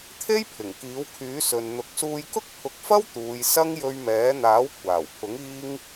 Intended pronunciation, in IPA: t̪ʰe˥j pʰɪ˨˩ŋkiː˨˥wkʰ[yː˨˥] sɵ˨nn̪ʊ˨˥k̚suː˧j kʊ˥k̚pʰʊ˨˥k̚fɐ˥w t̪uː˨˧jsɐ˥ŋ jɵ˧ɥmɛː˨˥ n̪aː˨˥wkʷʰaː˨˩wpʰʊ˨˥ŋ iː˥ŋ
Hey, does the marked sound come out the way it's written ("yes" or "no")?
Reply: yes